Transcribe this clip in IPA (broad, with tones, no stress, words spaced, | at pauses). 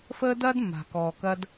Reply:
fəː˥dɐː˥dmːa̤˩ kɔː˩kɐ˧d